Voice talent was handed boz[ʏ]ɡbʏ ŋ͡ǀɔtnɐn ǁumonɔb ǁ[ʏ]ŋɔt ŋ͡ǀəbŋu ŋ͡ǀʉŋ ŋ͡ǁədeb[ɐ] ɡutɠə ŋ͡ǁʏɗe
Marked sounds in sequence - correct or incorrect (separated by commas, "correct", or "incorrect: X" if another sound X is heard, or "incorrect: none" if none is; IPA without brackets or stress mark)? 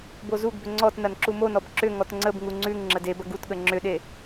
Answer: incorrect: u, correct, correct